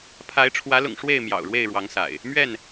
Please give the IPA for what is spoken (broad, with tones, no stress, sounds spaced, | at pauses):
pʰ a˨˦ ɪ̯ ʈ͡ʂʰ w ä˨˦ l ʊ̰˨˩ ŋ ʂ w e˥˨ ɪ̯ m j ɑ̰˨˩ ʊ̯ ɻ w e˥˨ ɪ̯ ɻ w ɑ˨˦ ŋ s a̰˨˩ ɪ̯ | m ɥ ɛ˥˨ n